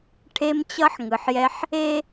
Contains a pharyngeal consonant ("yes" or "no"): yes